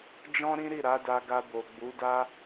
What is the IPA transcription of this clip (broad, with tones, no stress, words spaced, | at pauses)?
d͡ʒɔ̃˦ɾĩ˦ɾi˦˨ ɾa˨˦da˧ɡa˧ bo˨ɡ͡bu˨˦da˦